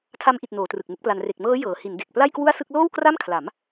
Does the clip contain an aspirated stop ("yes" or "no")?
yes